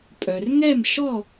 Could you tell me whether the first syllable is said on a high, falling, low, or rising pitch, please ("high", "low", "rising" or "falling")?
low